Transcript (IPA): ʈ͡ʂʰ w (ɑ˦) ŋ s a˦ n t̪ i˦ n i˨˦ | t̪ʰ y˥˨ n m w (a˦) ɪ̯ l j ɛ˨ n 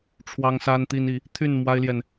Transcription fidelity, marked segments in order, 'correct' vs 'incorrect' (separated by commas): correct, correct